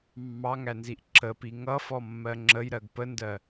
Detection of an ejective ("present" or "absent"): absent